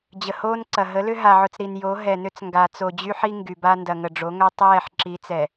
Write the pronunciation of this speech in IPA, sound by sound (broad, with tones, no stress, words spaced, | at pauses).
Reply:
d͡ʑə˨hoː˦nǀɐ˨ ɦə˨˦lʏ˦ ɦa˨ʕʊ˨t͡s ɾi˨njo˨˦ ɦɛ˨nʏ˦t͡s ŋɡa˨t͡so˨d͡ʑy˦ħi˦ ŋɡy˨ba˦ ndɐ˨ŋə˨ɖ͡ʐo˨˦ŋœ˦ tˤɛː˦˨ħǁi˨˦t͡sɛ˨